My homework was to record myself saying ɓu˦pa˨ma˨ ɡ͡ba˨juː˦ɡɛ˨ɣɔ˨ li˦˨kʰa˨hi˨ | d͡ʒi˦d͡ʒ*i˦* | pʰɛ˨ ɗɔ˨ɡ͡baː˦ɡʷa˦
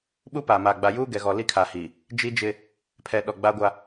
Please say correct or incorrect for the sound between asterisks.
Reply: incorrect